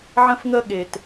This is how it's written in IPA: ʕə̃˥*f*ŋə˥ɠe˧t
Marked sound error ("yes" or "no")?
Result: no